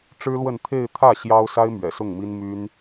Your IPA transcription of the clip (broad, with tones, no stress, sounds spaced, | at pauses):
ʈ͡ʂ ɻ̩˥ l w ə˥˧ n t̪ʰ e˥˧ ɪ̯ t̪ʰ ä˥˩ ɕ j ɑ˥ ʊ̯ s a˥ ɪ̯ m ɥ ɛ̰˨˩ s ʊ˥˩ ŋ m i˥ n m y˥ n